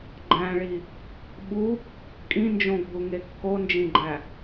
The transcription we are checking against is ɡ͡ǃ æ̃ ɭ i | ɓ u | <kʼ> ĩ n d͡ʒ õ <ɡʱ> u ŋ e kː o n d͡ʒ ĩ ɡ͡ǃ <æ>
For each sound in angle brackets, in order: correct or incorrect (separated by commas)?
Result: correct, correct, correct